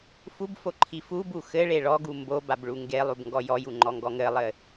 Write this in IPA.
f u b f o ǃʰ i f u b u x ɘ ɭ e ɭ ɔ ɡ u m b o b a b ɭ u ŋ ɡ e lˠ u b ŋ ɡ ɔ j ɔ j u ŋ͡ǃ ɔ ŋ ɡ ɔ ŋ ɘ lˠ ɘ

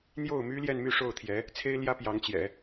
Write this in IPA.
n̪ j o˥˩ ʊ̯ m y˥ l j ɛ˥˧ n m y˥˧ ʂ o˥˩ ʊ̯ t̪ʰ j ɛ˧˥ | t͡sʰ e˥ ɪ̯ l j ä˥ p j ɑ˧˥ ŋ t͡ɕ j ɛ̰˨˩˦

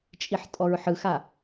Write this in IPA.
t͡ʃʼ i ħ tʼ ɔ ɹ ħ ɯ x a

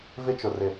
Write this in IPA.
v ɪ˦ t͡ʃ ʊ˨ r ɪ˨

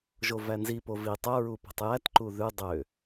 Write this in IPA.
ʒ o v æ n z i p o v i tˤ œ ɹ u p ɛ̤ tˤ j æ t ǃ u ð ʉ dˤ ø

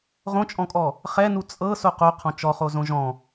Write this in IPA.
ʁ õ t͡ʃʼ ɔ̃ kʼ ɔ | χ ɛ n u t͡sʼ ɤ s o q o qʰ ɔ̃ t͡ʃ ɔ χ o z õ ʒ ɔ̃

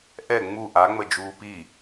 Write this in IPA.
ʔ ɛ ŋ͡m u ʔ a ŋ͡m ə d͡ʒ uː p i

